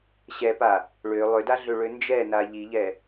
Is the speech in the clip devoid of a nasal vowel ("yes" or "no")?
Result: yes